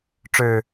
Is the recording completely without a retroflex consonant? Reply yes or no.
no